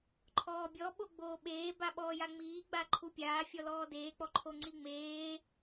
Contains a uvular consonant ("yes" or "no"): no